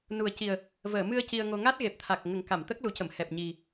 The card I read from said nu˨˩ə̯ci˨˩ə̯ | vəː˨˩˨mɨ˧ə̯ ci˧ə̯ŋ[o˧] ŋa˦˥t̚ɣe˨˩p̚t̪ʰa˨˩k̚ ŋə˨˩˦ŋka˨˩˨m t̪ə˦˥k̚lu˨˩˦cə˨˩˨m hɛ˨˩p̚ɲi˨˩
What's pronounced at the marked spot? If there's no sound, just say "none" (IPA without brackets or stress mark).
o˧